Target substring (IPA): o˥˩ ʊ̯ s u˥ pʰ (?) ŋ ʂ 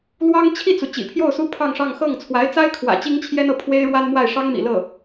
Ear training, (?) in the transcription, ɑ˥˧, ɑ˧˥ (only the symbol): ɑ˥˧